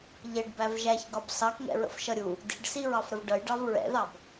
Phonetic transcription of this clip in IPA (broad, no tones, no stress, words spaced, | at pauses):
ʎɛɖbæv ʒæçɡɒb sɑkŋɛ̰ɹə̰fʃʌ ɾʲu | di̤ɖsiɹɑfɾəv ɖʌjɖɑv ɹɛ̰ðɑb